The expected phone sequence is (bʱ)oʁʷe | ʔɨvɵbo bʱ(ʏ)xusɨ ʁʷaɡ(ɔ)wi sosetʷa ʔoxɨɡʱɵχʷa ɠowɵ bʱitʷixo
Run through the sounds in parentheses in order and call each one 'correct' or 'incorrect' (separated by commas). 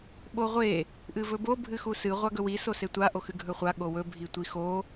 incorrect, incorrect, incorrect